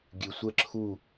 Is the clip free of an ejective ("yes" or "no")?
yes